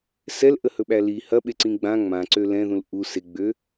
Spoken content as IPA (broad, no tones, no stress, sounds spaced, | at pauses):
s ɛ l ʔ ə h ɵ ɓ æ l i h ɐ ɓ e ǀ ĩ ɡ͡b ã ŋ͡m ã ǀ ø l ɛ̃ ð ũ l ʔ u s e ɡ͡b ø